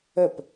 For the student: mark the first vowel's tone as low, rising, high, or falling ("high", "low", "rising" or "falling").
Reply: falling